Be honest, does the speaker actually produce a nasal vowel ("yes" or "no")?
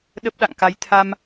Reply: no